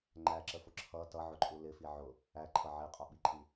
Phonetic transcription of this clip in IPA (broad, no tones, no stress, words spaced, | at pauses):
ŋ͡ǃæǁəfʊ ǁʰʌ tʌʕʊǃʼu lɪfi ʕʊ | æǃʰʌ ʕiqʼɔɓiǃʰi